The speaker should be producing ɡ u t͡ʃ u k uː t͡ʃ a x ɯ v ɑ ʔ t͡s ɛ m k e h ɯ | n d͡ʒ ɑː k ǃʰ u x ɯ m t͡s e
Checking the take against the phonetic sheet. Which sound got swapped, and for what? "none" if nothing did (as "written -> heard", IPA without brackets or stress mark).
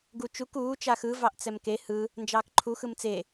none